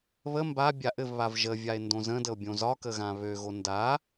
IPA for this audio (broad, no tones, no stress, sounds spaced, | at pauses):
β ə m b a bʲ a ʔ ɘ v β a v ʒ ə vʲ a e̯ n d õ z ə̃ d ə o̯ bʲ õ z ɒ k ə ɣ ã β ø ɣ o n d a